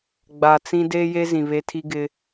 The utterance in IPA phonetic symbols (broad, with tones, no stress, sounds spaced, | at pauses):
ɡ͡b a˨ t͡s ĩ˦ d eː˦ j e˦ z ĩ˨ β e˦ tʰ i˦ ɡ ɪ˦